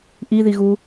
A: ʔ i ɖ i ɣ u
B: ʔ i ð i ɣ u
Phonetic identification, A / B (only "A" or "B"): B